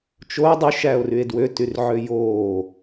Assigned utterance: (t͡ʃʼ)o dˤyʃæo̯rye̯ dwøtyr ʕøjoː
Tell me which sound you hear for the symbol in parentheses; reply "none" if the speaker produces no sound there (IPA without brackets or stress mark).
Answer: t͡ʃ